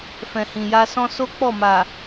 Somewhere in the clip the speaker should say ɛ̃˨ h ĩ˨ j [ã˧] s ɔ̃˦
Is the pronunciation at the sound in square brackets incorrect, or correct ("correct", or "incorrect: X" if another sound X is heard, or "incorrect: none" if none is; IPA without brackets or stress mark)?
incorrect: a˧